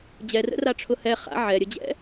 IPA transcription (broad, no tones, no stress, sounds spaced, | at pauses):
d͡ʑ ɛ r ə̰ r a ʈ͡ʂʰ ʊ h ɛ χ a̰ ʕ ɛ ɾʲ ə d͡ʑ ɛ̰